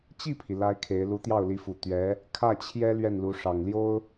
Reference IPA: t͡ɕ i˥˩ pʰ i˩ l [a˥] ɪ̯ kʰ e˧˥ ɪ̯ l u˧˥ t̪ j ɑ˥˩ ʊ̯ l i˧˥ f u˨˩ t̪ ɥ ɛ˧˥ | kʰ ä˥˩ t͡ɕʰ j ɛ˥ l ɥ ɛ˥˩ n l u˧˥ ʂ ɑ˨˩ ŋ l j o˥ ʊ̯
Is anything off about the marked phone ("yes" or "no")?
no